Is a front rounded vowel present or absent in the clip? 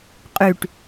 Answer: present